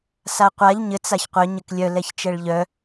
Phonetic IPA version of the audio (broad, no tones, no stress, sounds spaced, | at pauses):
s a qʷ a ʎ ɲ ɘ t͡s a ç qʷ œ ɲ ɘ k lʲ œ l ɛ ç t͡ʃ ɛ ɭ ʎ œ